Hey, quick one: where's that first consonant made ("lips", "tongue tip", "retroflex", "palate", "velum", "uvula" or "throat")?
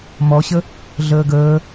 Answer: lips